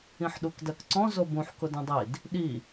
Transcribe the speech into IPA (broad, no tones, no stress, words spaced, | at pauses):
ĩħɗukdɜkǀɔ̃ zobũħ kʊdũdˤid | ɗi